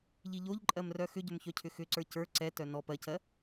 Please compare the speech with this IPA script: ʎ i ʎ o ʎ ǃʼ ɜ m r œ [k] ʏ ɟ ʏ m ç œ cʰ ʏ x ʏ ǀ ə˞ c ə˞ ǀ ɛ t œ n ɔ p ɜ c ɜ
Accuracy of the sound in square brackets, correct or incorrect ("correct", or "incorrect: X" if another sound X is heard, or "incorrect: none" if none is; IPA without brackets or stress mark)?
incorrect: x